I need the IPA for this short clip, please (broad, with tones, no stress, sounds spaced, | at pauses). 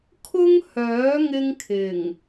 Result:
kʰ ʊ˥ ŋ h œː˨˥ ŋ ɪ˥ ŋ kʰ ɪ˨˩ ŋ